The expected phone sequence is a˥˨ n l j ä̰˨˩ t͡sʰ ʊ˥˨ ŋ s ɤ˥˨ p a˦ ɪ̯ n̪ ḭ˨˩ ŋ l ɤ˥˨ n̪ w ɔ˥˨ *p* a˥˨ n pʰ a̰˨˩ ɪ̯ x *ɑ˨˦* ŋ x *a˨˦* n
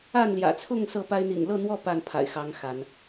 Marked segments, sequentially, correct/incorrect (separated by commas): correct, correct, correct